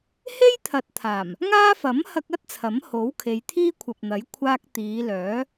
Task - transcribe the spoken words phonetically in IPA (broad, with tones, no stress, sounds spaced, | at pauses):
h e˥ j t̪ʰ ɐ˨˥ t̚ t̪ʰ aː˨˩ m | ŋ aː˥ f ɐ˨˥ m h ɐ˧ k̚ ɐ˥ t̚ t͡sʰ ɐ˨˥ m h o˨˥ w kʰ e˨˧ j t̪ʰ iː˥ kʷʰ ɐ˨ p̚ n̪ ɐ˨˥ j kʷʰ aː˥ k̚ t̪ iː˨˧ l œː˨˥